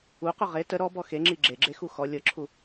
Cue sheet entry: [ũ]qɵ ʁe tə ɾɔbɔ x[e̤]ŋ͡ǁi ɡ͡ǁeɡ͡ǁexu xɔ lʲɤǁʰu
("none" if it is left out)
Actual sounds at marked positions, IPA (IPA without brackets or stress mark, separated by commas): u, e